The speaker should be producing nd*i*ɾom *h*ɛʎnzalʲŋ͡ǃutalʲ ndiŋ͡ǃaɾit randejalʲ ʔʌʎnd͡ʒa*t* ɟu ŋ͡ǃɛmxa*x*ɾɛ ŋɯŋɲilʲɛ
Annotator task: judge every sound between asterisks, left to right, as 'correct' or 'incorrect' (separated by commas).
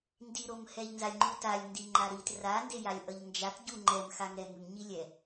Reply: correct, correct, correct, incorrect